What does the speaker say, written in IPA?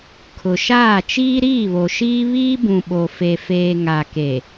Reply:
kʰ ʊ˨ ʃ aː˦˨ t͡ʃ iː˦ ɾ iː˦˨ β o˨ ʃ iː˦ β iː˦ b ũ˨ ɓ o˨ f e˨ f eː˨ ŋ a˨ k e˨

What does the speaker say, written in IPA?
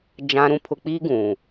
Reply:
d͡ʒ ã˦ ɾ ũ˦ pʰ ʊ˦ k͡p i˦ ɡ ũ˨

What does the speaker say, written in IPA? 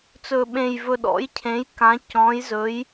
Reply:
t͡s ɵ˨˩ ɓ ẽ˨˩ j v ɵ˨˩ ɗ ɔ̰˨˥ j cʰ ẽ˨˥ j k ã˨˥ c ɔ̃˨˥ j z ɵ˨˥ j

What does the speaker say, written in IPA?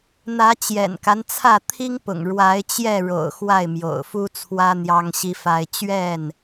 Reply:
n̪ ä˨˦ t͡ɕ j ɛ̰˨˩ n k a˦ n t͡sʰ ä˥˨ t̪ʰ i˦ ŋ p ʊ̰˨˩ ŋ ɻ w a˨˦ ɪ̯ t͡ɕ j ɛ˥˨ ɻ o̰˨˩ ʊ̯ x w a˥˨ ɪ̯ m j o̰˨˩ ʊ̯ f u˦ t͡sʰ w ä˦ n̪ j ɑ˦ ŋ ɕ i˦ f a˦ ɪ̯ t͡ɕ ɥ ɛ˥˨ n

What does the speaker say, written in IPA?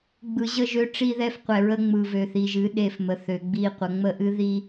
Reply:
ɡ͡b ɯ˨ ʑ ə˦˨ ʒ ø˦ ʈ͡ʂ i˦ ð ɛ˦ f qʷ ɛ˨ ɹ ə˦ ŋ͡m ɯ˨ v ø˨ θ i˨ ʒ ɨ˨˦ ɗ e˦˨ f m ə˨ θ ø˨ ɡ͡b i˦˨ qʷ ə˨ ŋ͡m ə˦ ʔ ɨ˦ ð i˦

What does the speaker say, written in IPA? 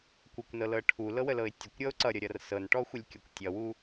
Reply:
kʷ ə kʷ n ɤ l ɤ ʈʰ u l ɤ w ə l ɤ ɪ̯ tʲ ə kʷ ɾʲ ʌ ʊ̯ ǀ ʌ ɾʲ ʌ ɾʲ ʌ r s ɤ n ʈ ɔ xʷ ə lʲ kʲ ʌ kʷ tʲ ʌ w u

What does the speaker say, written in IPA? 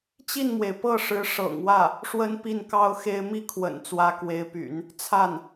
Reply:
t͡ɕ i˥˩ n m w e˩ ɪ̯ p ɤ˥˩ ʂ ɻ̩˧˥ ʂ ɤ̰˨˩ ŋ w ä˥˩ | ʂ w ə˥ n p i˥˩ n k ɑ˥ ʊ̯ x e˥ ɪ̯ m i˥˩ kʰ w ə̰˨˩ n t͡s w ä˧˥ k w e˧˥ ɪ̯ p y̰˨˩˦ n | t͡sʰ a˥˩ n

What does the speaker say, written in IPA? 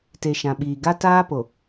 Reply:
t e˨ ʃ ã˨ ɓ iː˨ ɡ a˦ t aː˦ p o˨

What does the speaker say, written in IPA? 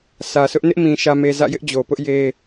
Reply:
sʰ ä˨ sʰ ʊ˦ ʔ n ɪ˦ ʔ m ĩ˨ ʃ ä˨ m e˨ z ä̰˦˨ j ɪ˦ ʔ d͡ʑ o˨ p ʊ˦ ʔ j e˦

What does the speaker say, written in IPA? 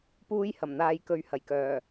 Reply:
p uː˥ j h ɐ˨˩ m n̪ aː˧ j k ɵ˧ ɥ h ɐ˨˩ j k œː˨˩

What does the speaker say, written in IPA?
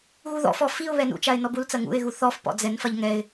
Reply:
ɣ u ð ɔ̰ f ɔ f i ʊ̯ β ɛ n ṵ t͡ʃ a ɪ̯ n ɔ b u l t͡s ɐ ŋ ṵ ɪ̯ ɣ u θ ɔ f p ɔ̰ d͡z ɛ n f ɐ ʎ ŋ ɛ ɪ̯

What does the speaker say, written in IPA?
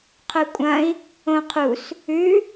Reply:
qʰ ɵ kʷʼ ɐ̃ i̯ | õ qʰ u s | ʉ

